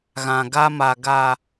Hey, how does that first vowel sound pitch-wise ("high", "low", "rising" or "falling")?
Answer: low